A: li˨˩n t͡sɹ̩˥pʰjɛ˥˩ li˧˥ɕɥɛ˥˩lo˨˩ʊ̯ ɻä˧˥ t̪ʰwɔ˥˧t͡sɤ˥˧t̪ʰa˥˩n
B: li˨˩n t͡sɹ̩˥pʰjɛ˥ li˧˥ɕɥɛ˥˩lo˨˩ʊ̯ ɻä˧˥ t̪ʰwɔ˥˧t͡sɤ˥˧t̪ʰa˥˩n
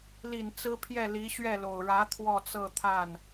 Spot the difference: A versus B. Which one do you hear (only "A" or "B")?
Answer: A